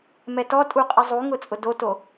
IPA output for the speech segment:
m ɛ t ɔ tʼ u qʼ i zˤ u ŋ ʊ t͡sʼ ʊ d o t o

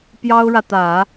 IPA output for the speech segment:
p j ɑ˥ ʊ̯ ɻ ä˨ t̪ ä˨˩˦

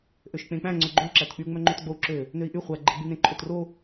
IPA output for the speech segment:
ʔ ø ʃ k͡p ẽ k͡p æ̃ ŋ͡ǀ ɵ ɡ͡ǃ ɵ u̯ ǁ æ t k͡p y u̯ ŋ͡m œ ŋ͡ǃ ø t ɡ͡b o u̯ ǁ ø | n ø i̯ ʔ y χʷ æ ɡ͡ǃ e ɡ͡b y n ẽ ǃʰ ɵ t r o

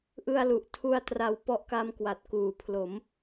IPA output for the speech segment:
ʔ ɯ˧ a̯ l u˨˩ ʔ tʰ u˧ a̯ t r a˧ w p ɔ˦˥ ʔ k a˦˥ m k w a˨˩ t̚ k uː˨˩ pʰ l o˩˦ m

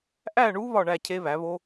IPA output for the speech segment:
ʔ æ˥˨ ɳ u˦˥ β ɒ˥˨ ɳ æ˥˨ cʰ e˦˥ β æ˩˥ β o˦˥

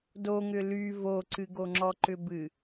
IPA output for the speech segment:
d o ŋ ʏ l y v o ǀ ɨ ɡ o ŋ͡ǁ ɔ ǃ ʏ b ɨ

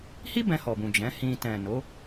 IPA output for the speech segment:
h i˦ b ɛ̃˧ h ɔ˨ b ũ˨ d͡ʒ ɛ̃˨˦ h ĩ˧ t ɛ̃˨ n o˨˦

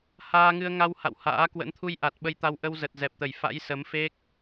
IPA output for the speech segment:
h aː˧ ŋ ɨ˧ ə̯ ŋ a˧ w h a̰˧˨ w h a̰ː˧˥ k w ə̰˧˥ n t̪ʰ u˧ j ʔ a˨˩ t̚ ɓ ə˧ j t̪ a˧ w ʔ ə˧ w z ə˨˩ t̚ z ɛ˨˩ p̚ t̪ ə˧˩ j f a̰˧˥ j s ə˨˦ m f e˦˥ k̚

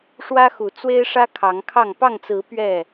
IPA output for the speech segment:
ʂ w ä˦ x u˨˦ t͡s w e˦ ɪ̯ ʂ ä˦ kʰ ɑ˨˦ ŋ kʰ ɑ˥˨ ŋ p ɑ˥˨ ŋ t͡s ɹ̩˨˦ p ɥ ɛ˥˨

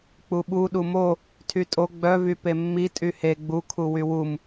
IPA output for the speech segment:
k͡p u ɓ u ɗ u m o | tʰ y tʼ o ɡ͡b œ v y p e mː i tʼ y h e ɡ͡b u kʰ u w y w u m

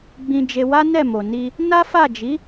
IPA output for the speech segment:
ɡ͡b ĩ˧ d͡ʒ e˧ w a˦ n ɛ˦˨ m o˨ n i˧ | n a˦ f a˦˨ d͡ʒ i˨˦

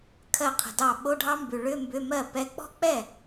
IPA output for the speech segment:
kʰ ɜ˥˩ qʰ ə̤˨ d ɑ˥˩ ɓ o˧˥˧ ɖʱ ɑ˦˥ m b ʉ˨ ɭ ʏ˧˥˧ m b ʏ˧˥˧ m ɜ˥˩ p ɛ˧˥˧ k͡p ɔ̤˦˥ k͡p ɛ˥˩

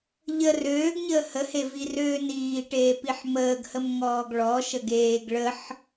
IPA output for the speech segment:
ʎ ə r øː ɡ ɲ əː h ə h e v i r øː n iː ʈ eː p i ħ m əː ɡ h ə m ŋ ɔː ɡ ɭ ɔ ʃ ə ɡ eː ɡ ɭ ə ħ

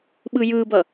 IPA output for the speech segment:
ɓ ɯ j ɯ b ʌ

